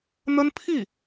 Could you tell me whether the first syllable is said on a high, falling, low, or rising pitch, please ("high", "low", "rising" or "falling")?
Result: high